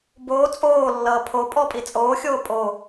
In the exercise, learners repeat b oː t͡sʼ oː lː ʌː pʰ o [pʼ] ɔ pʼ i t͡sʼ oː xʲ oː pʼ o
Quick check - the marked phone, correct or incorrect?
correct